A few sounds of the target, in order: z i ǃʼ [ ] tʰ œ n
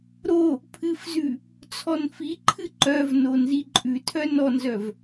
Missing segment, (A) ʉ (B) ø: A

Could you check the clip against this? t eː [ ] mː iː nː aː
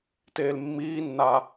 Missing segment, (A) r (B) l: B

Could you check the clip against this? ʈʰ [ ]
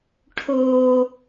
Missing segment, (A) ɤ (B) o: B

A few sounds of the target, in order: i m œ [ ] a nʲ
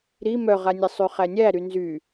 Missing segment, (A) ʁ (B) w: A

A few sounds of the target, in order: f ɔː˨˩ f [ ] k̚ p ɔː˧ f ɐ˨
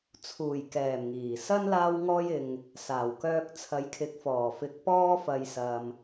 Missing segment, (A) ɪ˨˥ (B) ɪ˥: A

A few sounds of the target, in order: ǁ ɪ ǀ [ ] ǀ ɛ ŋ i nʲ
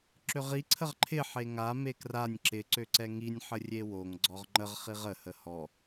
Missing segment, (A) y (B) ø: B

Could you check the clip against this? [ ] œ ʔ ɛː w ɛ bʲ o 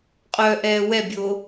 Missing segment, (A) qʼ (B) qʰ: A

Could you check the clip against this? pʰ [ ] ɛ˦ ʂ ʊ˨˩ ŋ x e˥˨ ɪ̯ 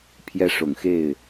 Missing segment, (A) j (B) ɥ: A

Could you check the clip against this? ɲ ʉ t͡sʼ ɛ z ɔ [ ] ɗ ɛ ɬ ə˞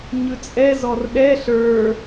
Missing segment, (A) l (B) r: B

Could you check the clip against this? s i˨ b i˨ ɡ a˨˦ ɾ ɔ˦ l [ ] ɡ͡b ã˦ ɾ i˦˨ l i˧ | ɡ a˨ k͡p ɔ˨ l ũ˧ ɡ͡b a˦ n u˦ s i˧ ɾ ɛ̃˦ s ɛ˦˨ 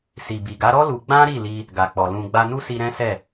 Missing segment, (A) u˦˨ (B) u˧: B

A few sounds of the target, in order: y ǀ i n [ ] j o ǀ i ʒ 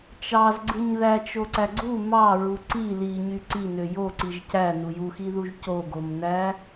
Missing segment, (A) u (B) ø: B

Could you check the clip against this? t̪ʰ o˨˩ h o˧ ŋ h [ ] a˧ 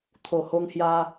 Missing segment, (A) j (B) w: A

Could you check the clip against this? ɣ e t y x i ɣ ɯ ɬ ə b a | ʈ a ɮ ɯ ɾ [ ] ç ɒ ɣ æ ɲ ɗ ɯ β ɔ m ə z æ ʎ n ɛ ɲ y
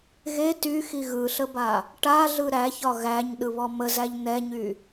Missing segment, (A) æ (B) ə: A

